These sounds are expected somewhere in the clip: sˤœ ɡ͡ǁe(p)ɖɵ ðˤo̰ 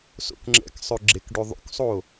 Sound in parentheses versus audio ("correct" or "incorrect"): incorrect